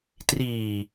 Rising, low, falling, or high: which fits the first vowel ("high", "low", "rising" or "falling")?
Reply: low